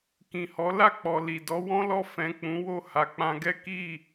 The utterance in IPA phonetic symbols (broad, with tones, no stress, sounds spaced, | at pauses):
k ĩ˨ h ɔ˨˦ l a˦˨ k͡p ɔ˨ l i˨ d ɔ˨˦ w ɔ̃˦ l ɔ˦˨ f ɛ̃˨ k͡p ũ˨˦ w o˦˨ h a˨ k͡p ã˧ ɡ ɛ˦ k i˦˨